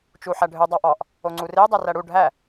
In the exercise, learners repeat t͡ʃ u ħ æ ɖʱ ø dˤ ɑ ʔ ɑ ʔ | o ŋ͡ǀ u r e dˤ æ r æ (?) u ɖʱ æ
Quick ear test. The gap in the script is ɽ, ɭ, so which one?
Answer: ɽ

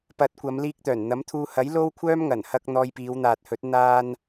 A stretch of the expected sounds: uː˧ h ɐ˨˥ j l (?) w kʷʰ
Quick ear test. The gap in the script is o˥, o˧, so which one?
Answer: o˥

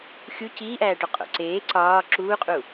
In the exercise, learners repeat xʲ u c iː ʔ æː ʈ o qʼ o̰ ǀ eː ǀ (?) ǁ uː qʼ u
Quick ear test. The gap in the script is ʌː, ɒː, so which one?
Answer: ɒː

